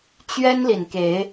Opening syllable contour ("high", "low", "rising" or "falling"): high